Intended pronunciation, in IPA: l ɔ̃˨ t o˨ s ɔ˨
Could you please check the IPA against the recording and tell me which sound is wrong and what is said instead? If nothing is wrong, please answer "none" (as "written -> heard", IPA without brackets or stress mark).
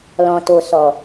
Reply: none